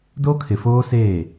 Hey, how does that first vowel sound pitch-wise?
high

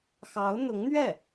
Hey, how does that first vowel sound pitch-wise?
rising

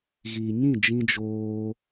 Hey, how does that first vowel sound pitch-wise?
low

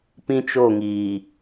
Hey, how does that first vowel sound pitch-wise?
high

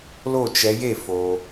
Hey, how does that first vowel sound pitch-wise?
falling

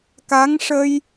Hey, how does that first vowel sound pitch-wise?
rising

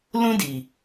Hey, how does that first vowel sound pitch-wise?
high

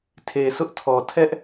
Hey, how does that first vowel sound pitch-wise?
low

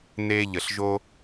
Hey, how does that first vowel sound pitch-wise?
high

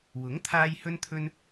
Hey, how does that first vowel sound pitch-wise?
rising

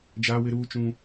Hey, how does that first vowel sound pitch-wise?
high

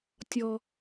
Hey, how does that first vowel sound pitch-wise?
high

